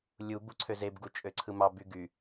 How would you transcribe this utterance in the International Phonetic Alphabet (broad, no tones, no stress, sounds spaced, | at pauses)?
lʲ u b u ǀʰ ø z e b ɡ u t͡ʃʼ ø ǀʰ ɯ m ɑ b y ɡ y